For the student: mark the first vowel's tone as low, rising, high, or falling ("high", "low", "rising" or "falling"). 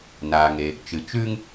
low